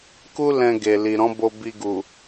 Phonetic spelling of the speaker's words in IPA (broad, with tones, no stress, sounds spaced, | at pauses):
k u˦ l ɛ̃˧ ɡ e˨ l i˨ ɾ ɔ̃˨˦ b o˧ b i˧ ɡ u˨